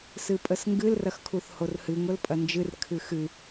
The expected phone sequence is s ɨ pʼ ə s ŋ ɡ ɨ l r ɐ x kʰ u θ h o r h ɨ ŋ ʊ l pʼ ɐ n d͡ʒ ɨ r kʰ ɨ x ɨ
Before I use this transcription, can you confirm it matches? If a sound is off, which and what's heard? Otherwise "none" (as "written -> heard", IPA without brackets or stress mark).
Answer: none